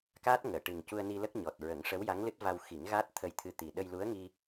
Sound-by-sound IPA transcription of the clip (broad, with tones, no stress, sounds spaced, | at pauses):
k aː˦˥ t̚ ŋ əː˨˩˨ ʈ ɨ˨˩ ŋ c u˧ ə̯ n i˧ l ə˦˥ k̚ ɲ ɔ˨˩ t̚ ɹ ə˨˩˦ ŋ ʂ ə˧˥ w j a˧˥ ŋ l ɨ˦˥ t̚ v a˧ w x i˨˩˦ ŋ ɣ aː˦˥ t̚ t̪ʰ ə˧ j t̪ʰ ɨ˧ t̪ i˨˩ ɗ ə˧ j l u˧˥ ə̯ ŋ i˧